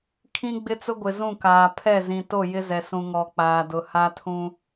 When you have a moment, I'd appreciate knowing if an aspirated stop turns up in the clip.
yes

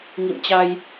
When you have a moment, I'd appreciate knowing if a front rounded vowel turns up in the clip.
no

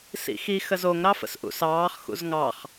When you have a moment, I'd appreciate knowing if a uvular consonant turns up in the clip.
yes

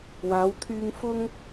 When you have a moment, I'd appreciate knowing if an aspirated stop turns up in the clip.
yes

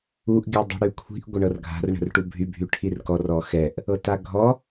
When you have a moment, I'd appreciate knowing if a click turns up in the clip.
no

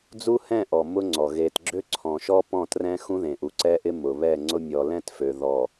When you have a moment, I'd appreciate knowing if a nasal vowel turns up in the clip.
yes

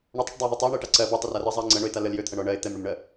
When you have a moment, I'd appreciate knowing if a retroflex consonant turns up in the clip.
yes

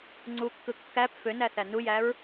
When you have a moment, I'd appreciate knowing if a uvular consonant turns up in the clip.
no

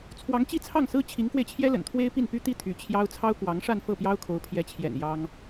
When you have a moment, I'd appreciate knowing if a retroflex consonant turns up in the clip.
yes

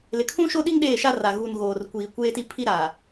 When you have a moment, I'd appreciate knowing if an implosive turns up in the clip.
yes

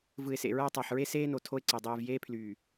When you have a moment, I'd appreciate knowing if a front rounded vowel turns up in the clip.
yes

